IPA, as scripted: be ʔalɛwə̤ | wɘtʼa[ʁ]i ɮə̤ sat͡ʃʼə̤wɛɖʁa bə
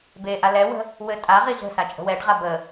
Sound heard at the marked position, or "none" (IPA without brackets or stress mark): ʁ